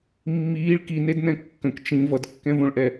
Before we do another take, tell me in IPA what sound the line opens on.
mː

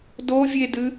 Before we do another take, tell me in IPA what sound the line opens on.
d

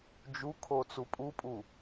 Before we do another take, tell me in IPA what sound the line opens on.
d͡ʒ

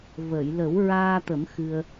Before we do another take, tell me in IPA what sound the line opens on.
v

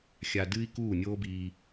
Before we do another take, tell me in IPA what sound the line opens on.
xʲ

